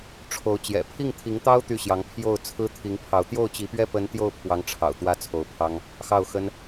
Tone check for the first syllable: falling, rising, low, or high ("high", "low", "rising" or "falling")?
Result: rising